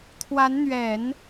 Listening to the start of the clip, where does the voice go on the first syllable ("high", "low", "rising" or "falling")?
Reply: rising